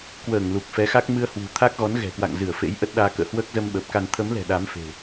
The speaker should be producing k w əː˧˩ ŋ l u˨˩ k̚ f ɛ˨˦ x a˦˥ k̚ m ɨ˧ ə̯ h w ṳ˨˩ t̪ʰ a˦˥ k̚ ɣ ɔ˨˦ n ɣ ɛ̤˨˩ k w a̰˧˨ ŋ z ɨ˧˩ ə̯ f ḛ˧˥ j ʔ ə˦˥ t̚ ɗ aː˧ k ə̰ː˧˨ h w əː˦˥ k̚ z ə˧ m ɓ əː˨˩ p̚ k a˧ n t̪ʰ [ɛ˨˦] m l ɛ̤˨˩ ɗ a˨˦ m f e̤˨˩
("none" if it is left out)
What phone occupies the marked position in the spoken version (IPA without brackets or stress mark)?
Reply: ə˨˦